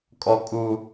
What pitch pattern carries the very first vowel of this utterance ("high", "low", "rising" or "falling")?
high